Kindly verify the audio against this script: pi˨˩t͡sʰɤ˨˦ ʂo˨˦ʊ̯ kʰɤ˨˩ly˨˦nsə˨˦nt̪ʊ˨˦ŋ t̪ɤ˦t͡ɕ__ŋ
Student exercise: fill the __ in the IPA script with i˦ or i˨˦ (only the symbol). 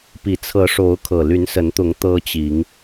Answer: i˨˦